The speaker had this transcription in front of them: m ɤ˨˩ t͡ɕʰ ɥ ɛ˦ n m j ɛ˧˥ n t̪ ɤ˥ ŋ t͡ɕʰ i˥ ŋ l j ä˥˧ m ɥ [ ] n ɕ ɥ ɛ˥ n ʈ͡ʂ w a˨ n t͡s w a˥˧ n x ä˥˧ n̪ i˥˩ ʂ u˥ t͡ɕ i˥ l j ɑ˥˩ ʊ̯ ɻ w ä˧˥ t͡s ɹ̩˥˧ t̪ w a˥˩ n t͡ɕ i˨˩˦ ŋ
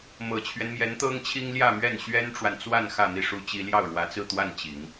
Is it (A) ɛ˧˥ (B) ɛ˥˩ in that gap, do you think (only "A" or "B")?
B